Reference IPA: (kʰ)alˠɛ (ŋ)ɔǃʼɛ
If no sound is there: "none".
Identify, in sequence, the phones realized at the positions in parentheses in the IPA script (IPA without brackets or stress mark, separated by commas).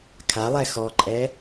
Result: kʰ, x